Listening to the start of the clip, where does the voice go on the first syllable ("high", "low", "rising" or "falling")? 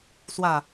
falling